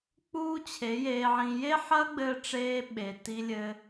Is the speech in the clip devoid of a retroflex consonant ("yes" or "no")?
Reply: no